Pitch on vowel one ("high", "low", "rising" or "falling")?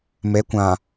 rising